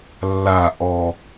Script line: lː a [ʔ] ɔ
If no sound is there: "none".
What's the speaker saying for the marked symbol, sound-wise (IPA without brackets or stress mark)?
ʔ